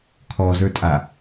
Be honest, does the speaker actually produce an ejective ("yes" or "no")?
yes